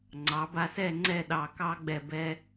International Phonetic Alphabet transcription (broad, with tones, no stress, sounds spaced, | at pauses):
ŋ͡ǀ ɑ˩˧ b a˧ s ɛ˥˧ ŋ͡ǀ ɛ˥˧ ɗ ɑ˧˩ k ɑ˥ ɡ͡b ɛ˧˩ b ɛ˧